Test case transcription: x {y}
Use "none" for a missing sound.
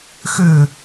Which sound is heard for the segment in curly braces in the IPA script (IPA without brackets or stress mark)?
ʏ